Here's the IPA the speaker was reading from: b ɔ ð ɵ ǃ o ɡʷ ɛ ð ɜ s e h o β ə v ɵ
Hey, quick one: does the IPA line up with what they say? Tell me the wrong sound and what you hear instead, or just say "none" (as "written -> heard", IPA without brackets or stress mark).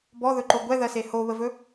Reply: none